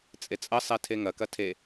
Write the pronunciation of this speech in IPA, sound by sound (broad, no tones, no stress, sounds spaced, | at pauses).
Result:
t͡sʼ e t͡sʼ ɐ sˤ ɛ tʰ e ŋ ɐ k ɐ tʰ e